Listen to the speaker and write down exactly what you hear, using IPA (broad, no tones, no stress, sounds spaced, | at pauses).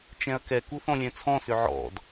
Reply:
t͡ʃ ɛ̃ ɐ̯ k ɛ k u θ ɔ̃ lʲ ɛ̃ t͡sʰ ɔ̃ s ʏ ʕ ɔ̰ d